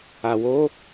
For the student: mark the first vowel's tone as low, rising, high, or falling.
low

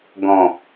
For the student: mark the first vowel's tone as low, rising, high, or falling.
low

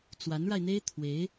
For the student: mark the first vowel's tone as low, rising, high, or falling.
rising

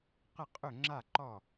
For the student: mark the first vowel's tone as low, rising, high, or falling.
falling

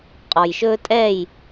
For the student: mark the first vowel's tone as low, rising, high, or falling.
low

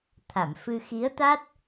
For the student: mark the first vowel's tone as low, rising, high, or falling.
low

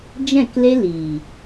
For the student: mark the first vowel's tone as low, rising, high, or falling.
falling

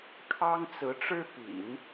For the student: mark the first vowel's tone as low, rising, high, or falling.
high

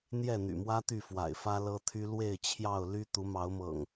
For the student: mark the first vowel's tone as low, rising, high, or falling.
falling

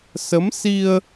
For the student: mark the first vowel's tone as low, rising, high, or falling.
rising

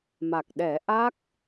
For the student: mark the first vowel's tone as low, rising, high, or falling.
low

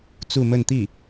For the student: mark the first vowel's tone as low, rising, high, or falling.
falling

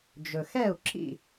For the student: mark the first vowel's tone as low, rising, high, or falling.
low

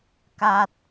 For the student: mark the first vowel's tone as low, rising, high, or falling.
low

